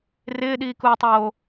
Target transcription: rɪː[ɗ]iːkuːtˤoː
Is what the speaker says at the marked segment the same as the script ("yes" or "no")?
yes